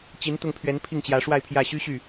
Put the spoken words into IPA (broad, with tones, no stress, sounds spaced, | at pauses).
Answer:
t͡ɕ i˧˥ n t̪ ʊ˥˩ ŋ pʰ ɥ ɛ˧˥ n pʰ i˥˩ ŋ t͡ɕ j ä˧˥ ʂ w a˥˧ ɪ̯ pʰ j ä˥˩ ɕ y˥ ɕ y˥˩